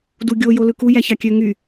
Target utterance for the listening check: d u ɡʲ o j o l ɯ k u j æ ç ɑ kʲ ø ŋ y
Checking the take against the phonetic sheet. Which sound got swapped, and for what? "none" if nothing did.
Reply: none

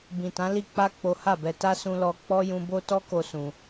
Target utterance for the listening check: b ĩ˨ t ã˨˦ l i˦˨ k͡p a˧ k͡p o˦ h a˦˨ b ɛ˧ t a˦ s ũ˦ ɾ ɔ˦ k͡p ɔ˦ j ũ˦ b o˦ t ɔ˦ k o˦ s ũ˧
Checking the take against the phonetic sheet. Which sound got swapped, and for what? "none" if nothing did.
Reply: ɾ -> l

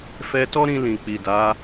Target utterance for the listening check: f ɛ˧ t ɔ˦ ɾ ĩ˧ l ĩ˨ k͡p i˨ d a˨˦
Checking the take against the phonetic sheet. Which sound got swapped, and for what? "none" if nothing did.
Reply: none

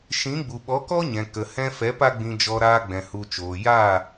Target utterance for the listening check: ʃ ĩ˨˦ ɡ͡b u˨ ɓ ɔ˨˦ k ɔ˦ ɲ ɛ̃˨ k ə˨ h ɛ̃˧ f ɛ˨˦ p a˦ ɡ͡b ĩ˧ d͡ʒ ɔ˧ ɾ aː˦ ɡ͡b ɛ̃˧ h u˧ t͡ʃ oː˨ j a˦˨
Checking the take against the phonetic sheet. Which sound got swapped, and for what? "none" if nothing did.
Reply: none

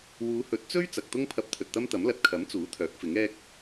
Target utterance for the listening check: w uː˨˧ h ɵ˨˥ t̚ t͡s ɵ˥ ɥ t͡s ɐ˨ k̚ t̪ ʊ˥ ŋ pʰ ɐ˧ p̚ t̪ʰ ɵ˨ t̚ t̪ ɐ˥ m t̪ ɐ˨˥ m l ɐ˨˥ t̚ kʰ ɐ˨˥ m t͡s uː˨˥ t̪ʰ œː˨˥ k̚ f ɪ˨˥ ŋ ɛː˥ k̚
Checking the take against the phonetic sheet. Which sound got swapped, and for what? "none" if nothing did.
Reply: none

